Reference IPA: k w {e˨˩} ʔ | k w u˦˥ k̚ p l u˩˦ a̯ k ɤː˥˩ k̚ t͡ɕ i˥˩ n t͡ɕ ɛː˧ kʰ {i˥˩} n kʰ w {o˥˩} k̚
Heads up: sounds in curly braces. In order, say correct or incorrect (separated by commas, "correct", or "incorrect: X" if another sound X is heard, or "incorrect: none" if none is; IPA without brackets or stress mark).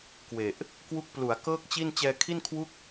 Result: correct, correct, incorrect: u˥˩